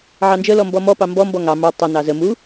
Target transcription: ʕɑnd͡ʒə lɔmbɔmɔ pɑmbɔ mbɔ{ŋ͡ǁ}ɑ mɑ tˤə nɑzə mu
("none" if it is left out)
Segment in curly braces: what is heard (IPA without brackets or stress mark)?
ŋ